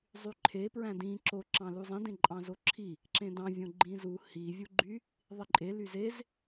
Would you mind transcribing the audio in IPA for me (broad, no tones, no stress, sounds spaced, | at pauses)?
zˤ y ǃʰ e p ɹ æ̃ d ĩ ǁ o ǁ ɑ̃ l u zˤ ĩ d ẽ ǃʼ ɑ̃ z o ǁʰ i | ǁ ẽ d ɑ̃ vʲ õ ɡ͡ǃ ĩ z u h i vʲ u ɡ͡ǃ y | ðˤ i ǃʼ e l y z e z